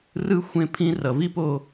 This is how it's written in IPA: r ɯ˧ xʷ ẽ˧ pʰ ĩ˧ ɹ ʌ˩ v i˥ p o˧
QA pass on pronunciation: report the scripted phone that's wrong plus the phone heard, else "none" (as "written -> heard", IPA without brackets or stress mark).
ɹ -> r